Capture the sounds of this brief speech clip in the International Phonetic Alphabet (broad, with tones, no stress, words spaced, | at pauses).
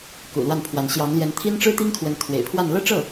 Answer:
kṵ˨˩lwa˥˩npʰwa˧˥n ɕjɑ˧˥ŋljɛ˧˥n t̪ʰi˥nʈ͡ʂɻ̩˥t̪i˥ŋkʰwə˧˥n t̪ʰwḛ˨˩ɪ̯pʰwa˥˧n lɤ˥˧ʈ͡ʂɤ˥˩